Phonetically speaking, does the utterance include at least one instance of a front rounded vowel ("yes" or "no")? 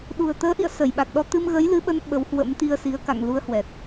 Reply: no